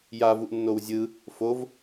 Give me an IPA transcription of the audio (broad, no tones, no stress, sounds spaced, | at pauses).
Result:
j a v u ʔ nː o w zʲ ɯ | f o v